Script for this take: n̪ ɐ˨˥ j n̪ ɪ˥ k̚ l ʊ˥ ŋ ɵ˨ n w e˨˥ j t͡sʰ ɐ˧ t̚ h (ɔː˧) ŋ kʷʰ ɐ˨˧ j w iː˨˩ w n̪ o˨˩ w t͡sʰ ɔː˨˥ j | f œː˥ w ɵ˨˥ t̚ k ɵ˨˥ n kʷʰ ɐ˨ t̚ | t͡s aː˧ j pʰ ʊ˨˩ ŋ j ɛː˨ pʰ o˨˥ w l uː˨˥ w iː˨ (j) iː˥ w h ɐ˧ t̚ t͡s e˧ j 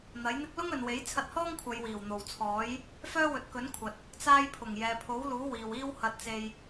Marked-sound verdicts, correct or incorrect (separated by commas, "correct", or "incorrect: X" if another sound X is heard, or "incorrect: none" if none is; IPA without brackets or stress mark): incorrect: ɔː˥, incorrect: w